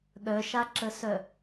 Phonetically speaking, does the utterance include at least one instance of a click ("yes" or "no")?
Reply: yes